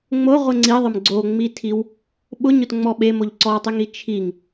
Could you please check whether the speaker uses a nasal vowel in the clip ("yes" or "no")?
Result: no